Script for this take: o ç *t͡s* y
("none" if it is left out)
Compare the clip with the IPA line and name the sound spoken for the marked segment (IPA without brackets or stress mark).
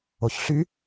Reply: ɬ